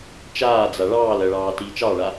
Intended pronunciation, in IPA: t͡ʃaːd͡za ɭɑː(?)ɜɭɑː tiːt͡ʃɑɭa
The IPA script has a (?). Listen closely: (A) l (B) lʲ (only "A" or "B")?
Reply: A